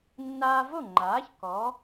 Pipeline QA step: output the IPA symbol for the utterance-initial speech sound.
nː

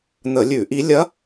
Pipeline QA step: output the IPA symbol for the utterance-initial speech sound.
n̪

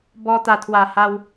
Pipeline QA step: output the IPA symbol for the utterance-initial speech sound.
b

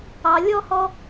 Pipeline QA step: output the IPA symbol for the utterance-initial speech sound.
ɑ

